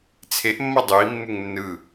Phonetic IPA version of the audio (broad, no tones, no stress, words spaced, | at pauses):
t͡sʰeʔmːʌ dˤui̯mːuŋ nːɯ